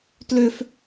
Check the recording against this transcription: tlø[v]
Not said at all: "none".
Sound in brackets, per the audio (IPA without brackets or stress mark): f